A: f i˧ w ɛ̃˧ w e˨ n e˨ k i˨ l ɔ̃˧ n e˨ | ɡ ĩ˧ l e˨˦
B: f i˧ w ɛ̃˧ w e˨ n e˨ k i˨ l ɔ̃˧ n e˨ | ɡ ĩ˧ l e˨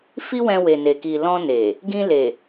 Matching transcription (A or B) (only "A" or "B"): B